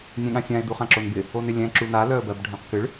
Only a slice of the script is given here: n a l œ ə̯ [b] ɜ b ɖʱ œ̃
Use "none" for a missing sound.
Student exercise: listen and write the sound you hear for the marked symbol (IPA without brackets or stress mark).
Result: b